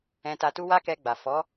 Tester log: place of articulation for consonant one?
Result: alveolar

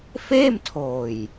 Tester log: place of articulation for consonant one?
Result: labial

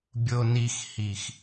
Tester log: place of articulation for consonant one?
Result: labial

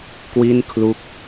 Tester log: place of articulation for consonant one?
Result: velar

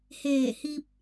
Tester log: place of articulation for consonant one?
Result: glottal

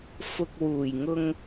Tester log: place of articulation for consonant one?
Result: labial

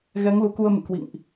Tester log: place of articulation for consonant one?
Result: velar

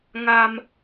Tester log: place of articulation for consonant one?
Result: velar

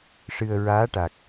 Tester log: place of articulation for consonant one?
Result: retroflex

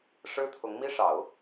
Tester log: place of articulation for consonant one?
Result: retroflex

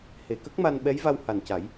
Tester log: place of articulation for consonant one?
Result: glottal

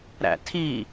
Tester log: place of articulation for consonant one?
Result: alveolar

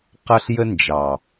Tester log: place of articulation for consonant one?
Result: uvular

